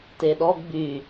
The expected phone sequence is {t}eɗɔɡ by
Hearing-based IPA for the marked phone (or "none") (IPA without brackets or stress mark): t